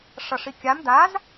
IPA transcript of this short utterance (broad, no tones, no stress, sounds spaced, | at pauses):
ʂ ʌ ʂ i kʲ a m d a z